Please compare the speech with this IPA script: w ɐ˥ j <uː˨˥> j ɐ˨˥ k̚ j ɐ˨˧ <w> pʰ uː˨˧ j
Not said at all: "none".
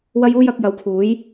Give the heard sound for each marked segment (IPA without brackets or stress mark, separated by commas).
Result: uː˥, w